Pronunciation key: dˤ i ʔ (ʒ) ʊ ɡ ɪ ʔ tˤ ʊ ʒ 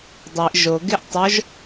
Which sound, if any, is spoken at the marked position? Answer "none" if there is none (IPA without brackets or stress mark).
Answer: ʒ